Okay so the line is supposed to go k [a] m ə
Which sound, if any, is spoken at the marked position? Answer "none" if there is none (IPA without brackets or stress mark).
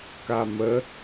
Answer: a